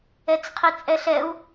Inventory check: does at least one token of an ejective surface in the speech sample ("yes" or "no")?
yes